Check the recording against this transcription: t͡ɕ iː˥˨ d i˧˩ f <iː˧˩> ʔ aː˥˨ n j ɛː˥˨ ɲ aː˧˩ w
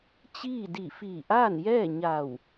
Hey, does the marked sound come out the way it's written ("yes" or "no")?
yes